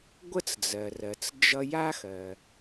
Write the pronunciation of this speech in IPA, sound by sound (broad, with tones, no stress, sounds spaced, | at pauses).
ɡʷ ə˥ t͡s d͡z ɜ˩ r ɜ˩ t͡s d͡ʒ ʌ˧ j a˥ x ɜ˩